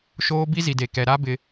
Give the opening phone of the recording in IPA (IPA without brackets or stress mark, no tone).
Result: ʃ